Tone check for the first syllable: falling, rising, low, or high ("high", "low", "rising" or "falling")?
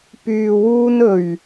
low